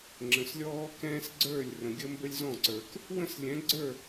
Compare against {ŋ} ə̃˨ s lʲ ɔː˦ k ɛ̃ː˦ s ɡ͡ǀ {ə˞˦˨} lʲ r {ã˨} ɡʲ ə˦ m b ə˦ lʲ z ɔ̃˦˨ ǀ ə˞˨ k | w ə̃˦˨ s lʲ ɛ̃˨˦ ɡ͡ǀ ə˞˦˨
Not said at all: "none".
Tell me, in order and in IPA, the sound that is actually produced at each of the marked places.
ŋ͡ǁ, ə˞˦˨, ə̃˨

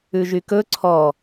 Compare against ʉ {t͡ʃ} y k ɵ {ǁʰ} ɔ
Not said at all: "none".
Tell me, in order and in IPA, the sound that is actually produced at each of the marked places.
ʒ, ǀʰ

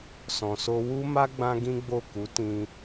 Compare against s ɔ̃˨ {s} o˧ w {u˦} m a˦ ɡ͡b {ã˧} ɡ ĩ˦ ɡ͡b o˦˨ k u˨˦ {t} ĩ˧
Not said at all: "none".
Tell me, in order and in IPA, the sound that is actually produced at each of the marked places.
s, u˦, ã˦, t

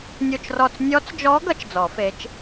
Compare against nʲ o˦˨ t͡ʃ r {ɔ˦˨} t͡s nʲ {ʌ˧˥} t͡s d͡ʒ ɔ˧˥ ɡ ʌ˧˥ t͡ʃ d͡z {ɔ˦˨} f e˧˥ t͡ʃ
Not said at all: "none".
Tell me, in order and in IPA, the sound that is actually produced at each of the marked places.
ɔ˦˨, ɔ˧˥, ɔ˨˩˦

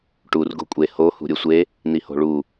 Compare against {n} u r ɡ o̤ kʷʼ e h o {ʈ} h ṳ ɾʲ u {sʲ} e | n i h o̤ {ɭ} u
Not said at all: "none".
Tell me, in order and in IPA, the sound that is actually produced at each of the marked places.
ʈ, none, sʷ, ɭ

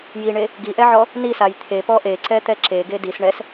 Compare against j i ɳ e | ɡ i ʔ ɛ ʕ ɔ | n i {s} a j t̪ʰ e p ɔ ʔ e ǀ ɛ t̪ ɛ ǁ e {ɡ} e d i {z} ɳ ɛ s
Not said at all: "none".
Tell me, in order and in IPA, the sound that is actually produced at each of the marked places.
s, ɡ, s

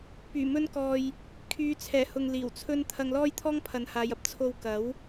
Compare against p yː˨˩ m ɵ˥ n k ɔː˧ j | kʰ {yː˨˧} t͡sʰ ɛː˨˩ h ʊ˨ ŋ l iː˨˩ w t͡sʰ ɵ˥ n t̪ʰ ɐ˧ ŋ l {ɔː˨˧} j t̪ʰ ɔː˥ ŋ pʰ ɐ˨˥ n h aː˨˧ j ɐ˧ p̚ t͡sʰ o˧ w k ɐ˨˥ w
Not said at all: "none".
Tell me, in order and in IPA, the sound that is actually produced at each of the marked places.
yː˨˧, ɔː˥

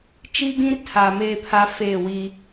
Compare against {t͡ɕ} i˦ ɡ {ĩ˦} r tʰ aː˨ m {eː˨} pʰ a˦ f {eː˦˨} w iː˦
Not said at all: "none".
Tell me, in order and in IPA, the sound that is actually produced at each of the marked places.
t͡ʃ, ĩ˦, eː˦, eː˦˨

